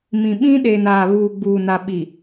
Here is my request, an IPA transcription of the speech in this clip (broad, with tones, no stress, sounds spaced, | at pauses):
m ĩ˨ ɓ ĩ˦ ɗ eː˨ n aː˨ β uː˨ ɡ͡b uː˨ n a˨ ɓ i˨